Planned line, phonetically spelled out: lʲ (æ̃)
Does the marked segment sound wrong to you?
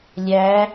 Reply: yes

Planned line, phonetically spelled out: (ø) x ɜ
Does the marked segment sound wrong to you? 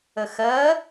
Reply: yes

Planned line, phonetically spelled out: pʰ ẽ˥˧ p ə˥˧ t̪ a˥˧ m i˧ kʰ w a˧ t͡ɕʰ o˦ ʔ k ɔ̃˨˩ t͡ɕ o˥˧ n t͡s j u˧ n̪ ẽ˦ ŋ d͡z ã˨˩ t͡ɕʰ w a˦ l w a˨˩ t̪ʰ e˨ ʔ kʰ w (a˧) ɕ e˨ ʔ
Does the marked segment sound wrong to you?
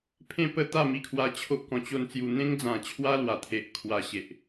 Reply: no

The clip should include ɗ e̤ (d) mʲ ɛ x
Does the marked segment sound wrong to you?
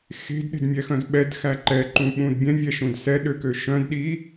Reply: no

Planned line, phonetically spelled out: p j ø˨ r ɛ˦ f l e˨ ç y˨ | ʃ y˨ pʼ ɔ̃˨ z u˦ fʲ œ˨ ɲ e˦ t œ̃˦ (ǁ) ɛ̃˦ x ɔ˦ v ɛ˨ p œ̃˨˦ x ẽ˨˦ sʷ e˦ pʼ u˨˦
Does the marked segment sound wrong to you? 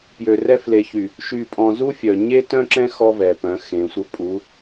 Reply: no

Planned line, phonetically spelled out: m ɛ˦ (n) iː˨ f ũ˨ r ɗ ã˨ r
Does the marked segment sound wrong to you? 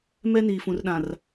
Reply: no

